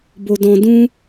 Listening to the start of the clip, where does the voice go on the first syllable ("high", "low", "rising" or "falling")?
low